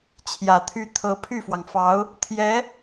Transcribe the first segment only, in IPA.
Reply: t͡ɕʰ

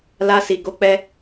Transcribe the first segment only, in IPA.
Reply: l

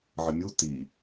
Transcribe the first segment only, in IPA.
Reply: ʕ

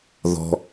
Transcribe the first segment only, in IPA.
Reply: ð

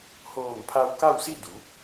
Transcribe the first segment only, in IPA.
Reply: h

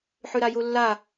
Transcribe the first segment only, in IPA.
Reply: ħ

